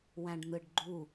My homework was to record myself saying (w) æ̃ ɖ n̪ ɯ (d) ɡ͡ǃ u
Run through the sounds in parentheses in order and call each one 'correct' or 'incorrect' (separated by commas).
correct, incorrect